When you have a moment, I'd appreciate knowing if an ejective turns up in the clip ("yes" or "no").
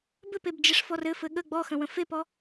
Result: no